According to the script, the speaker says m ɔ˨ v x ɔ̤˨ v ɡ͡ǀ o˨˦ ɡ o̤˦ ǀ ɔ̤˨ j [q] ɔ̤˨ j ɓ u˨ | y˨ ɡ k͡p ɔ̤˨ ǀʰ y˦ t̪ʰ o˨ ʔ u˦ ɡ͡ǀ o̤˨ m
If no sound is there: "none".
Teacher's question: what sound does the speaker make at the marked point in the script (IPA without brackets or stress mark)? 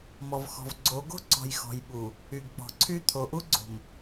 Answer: x